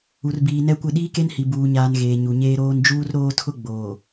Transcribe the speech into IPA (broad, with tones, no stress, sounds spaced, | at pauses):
u˨ r b iː˨ n ɛ˦ kʷ ɪ˦˨ ɗ iː˦ k e˦ n h i˨ b uː˨ ɲ aː˨ n ɣ eː˨ ɲ u˨ ɲ eː˦ ɾ oː˦ n d͡ʒ uː˦ r ɾ oː˦ tʰ ʊ˦ ɡ͡b oː˨